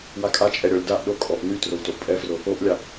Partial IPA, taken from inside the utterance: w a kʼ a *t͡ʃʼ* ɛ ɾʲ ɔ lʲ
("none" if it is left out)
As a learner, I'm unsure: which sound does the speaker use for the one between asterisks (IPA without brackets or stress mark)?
t͡ʃʼ